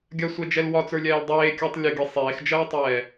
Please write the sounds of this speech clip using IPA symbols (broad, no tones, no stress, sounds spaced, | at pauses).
ɡʲ ɐ sʷ ɛ d͡ʒ ɛ l w ɒ t͡s ə˞ lʲ ɛː l dˤ eː kʲ əː tˤ lʲ ə ɡʲ e sˤ eː x d͡ʒ ɐː tˤ ɛː